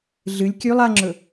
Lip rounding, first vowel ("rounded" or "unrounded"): unrounded